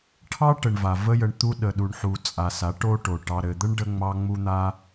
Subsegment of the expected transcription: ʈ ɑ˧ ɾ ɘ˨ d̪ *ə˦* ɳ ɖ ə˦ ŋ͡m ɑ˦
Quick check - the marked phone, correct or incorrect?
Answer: correct